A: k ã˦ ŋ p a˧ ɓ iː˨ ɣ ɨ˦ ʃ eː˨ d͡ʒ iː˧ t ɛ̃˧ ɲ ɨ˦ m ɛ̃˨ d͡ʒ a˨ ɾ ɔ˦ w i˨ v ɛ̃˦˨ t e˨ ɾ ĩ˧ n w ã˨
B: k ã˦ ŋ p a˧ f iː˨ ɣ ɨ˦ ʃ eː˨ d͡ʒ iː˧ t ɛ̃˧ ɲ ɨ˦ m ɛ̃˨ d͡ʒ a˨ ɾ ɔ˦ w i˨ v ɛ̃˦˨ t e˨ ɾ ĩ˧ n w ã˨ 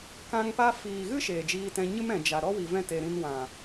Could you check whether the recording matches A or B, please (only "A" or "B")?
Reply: B